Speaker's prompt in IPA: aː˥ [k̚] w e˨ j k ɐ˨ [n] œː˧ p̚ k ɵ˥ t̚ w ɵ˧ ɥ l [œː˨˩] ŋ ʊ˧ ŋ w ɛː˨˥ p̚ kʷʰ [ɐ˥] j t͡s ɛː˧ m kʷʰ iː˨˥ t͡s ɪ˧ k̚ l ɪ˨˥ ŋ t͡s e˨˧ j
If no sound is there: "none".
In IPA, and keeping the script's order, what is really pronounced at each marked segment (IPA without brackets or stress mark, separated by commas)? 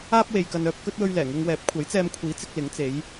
p̚, n, ɛː˨˩, ɐ˨˥